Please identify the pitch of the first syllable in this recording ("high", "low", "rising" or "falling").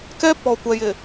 high